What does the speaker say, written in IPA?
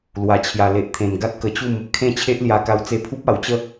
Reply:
lwa˨˩t͡ɕʰja˨˩ le˨ʔt̪ʰẽ˨˩n ɡa˦t̚kə˧t͡ɕu˥˧m | kʰẽ˥˧t͡ɕʰe˦ʔlja˧ ka˧wt͡se˧pʰu˦p̚ a˨˩wt͡ɕə˥˧

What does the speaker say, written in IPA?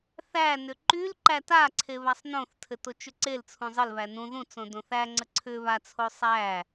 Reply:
θænʏ ǃyl ǃætaǀʰe βasˤnõθtʰɘ tot͡ʃʏǀelt͡sʰũ zˤɘlβæ nũ ðũt͡sõ dõθæŋ͡ǀə ǀʰʏ βat͡sʰo sˤæ

